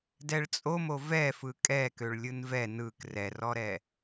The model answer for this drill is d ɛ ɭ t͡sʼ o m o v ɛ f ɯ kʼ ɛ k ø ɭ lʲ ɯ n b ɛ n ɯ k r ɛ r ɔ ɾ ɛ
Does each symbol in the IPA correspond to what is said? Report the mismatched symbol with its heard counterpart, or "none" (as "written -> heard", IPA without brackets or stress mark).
b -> v